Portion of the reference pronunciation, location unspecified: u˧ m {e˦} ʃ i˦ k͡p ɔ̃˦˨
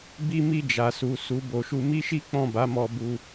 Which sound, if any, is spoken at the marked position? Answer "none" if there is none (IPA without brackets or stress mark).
i˦